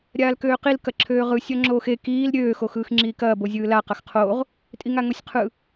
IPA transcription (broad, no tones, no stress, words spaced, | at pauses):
ɾʲaːlkøːqil kɐǁʰøːʁɯ sʲɒŋ͡ǁoːxe kiːl ɾʲøː xoxɯːxŋ͡ǁiːkɐː bozʲɯːla qɐxqʰoːʁ | tʼiŋaŋosʲqʰɯ